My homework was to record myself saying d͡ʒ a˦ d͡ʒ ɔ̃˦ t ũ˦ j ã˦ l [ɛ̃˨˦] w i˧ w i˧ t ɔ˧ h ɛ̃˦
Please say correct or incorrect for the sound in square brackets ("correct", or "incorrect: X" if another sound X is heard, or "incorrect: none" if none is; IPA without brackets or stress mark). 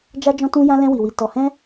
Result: incorrect: ɛ̃˦